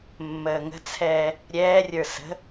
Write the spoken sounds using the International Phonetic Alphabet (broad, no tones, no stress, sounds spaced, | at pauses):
mː əː ŋ ə̤ t͡sʰ ɛː | ɾʲ ɛː rʲ ə˞ s ə̤